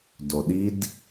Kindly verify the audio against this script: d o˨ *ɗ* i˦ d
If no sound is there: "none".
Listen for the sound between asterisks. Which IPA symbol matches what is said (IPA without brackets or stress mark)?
ɗ